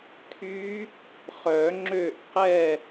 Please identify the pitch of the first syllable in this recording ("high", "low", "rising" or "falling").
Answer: rising